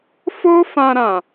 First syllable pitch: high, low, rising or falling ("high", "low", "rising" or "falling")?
high